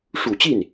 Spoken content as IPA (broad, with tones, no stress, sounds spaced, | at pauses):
ʂ u˨˩ t͡ɕ i˥˩ n